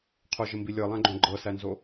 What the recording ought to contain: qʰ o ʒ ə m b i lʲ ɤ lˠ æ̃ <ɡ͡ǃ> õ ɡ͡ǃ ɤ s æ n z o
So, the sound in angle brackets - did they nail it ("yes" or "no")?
yes